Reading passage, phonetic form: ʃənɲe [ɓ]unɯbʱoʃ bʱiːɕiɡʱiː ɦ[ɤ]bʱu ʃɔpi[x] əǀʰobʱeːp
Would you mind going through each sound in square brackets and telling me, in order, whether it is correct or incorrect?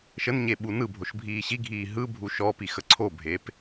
correct, incorrect: ɯ, correct

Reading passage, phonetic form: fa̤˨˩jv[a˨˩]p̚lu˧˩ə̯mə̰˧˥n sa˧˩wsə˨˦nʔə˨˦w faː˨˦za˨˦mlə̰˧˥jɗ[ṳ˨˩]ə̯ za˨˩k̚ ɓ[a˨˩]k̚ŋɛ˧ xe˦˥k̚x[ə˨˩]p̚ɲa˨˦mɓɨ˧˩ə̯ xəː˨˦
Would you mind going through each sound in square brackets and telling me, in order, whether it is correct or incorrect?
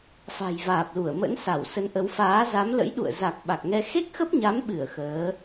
incorrect: aː˨˩, incorrect: ṵ˧˨, correct, incorrect: ə˦˥

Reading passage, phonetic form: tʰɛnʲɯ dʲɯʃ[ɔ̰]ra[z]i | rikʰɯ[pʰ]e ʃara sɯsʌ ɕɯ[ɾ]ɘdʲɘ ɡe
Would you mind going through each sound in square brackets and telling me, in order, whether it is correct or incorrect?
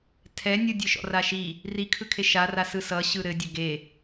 correct, incorrect: ʃ, incorrect: kʰ, correct

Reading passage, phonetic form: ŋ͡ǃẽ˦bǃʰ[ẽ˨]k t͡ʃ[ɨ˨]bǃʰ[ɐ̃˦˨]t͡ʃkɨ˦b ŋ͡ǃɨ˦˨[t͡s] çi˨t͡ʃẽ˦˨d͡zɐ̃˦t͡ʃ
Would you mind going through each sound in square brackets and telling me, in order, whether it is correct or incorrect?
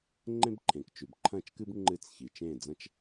correct, incorrect: ʉ˨, correct, correct

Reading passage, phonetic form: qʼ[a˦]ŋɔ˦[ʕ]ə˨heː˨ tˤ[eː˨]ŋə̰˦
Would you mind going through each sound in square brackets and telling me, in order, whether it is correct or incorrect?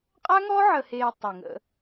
correct, correct, incorrect: e˨

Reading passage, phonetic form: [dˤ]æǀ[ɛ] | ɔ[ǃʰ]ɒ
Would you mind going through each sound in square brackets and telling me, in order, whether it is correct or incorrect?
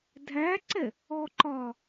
incorrect: dʱ, correct, incorrect: ǃ

